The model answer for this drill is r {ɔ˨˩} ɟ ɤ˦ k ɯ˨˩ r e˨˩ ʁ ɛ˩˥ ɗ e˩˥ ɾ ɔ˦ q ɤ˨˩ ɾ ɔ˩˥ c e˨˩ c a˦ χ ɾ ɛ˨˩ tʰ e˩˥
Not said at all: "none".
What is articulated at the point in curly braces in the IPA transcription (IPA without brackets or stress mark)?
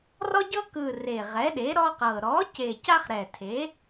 ɔ˦